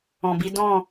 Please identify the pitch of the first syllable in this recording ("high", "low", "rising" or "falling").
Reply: low